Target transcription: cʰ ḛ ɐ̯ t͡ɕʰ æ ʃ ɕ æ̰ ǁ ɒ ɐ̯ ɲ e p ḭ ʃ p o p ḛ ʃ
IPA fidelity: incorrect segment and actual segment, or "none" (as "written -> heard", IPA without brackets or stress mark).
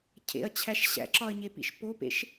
none